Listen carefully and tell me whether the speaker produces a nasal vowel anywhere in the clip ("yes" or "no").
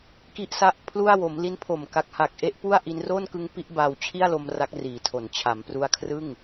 no